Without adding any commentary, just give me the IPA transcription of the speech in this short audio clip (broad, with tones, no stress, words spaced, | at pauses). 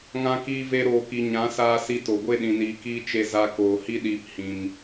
ŋã˧ kiː˧ve˧ɾoː˨ki˨ ɲã˨˦saː˧si˧to˨ ɡʷe˧ɗĩ˨niː˨kiː˧ t͡ʃe˧ za˧ koː˨hi˦ɗiː˧p hĩ˧m